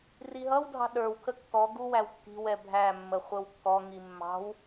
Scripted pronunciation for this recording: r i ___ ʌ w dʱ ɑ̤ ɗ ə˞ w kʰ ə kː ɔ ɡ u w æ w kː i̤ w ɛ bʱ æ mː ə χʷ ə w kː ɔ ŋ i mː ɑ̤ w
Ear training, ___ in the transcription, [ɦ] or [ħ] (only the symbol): ɦ